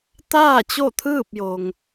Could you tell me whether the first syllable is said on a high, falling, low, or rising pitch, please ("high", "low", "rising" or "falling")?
falling